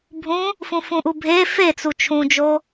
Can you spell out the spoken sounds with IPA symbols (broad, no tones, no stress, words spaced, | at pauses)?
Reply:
bʱũ | fũfũʔubʱe fet͡su t͡ʃʰũd͡ʒo